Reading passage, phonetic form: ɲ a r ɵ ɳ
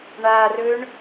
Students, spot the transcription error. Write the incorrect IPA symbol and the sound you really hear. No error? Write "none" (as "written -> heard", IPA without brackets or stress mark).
ɲ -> ɳ